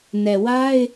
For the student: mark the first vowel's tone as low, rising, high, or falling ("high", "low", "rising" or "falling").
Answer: low